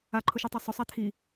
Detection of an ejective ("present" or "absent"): absent